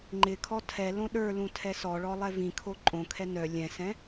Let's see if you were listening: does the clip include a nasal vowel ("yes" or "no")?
yes